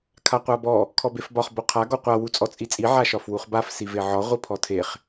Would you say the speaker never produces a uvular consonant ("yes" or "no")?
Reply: no